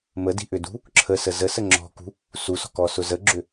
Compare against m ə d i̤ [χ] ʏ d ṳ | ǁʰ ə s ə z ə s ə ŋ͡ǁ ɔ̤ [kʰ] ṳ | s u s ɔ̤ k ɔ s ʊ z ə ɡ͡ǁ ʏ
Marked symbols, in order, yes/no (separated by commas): no, no